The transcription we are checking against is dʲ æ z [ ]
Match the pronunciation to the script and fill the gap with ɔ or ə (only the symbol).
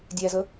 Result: ə